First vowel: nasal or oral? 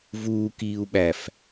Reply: oral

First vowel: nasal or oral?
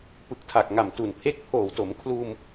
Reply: oral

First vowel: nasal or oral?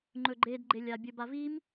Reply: oral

